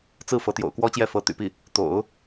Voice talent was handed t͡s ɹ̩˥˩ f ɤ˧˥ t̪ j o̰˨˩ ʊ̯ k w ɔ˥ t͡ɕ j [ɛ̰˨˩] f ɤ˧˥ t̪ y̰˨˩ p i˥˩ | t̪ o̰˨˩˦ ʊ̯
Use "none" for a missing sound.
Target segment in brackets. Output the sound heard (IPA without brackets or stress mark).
ɛ˥˩